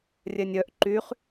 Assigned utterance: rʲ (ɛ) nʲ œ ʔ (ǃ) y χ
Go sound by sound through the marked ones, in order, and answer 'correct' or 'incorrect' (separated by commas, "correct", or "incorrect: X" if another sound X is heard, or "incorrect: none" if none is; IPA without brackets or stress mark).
correct, correct